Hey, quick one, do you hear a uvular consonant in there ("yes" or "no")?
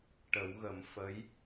no